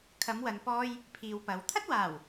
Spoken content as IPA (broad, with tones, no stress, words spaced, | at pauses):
kʰɐ˨˧mwɐ˨npɔː˧j | pʰiː˨wpɐ˨w t̪ʰɐ˥t̚waː˨˩w